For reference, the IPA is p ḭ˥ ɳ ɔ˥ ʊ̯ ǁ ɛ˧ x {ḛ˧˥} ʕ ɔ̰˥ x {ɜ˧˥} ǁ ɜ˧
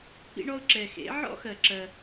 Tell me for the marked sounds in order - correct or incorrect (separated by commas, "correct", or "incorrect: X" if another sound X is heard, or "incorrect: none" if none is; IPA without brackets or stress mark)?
correct, incorrect: ɜ˧